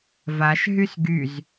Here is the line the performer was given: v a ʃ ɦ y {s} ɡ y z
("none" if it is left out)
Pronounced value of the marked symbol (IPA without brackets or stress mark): s